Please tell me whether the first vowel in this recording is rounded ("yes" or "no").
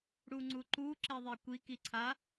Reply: yes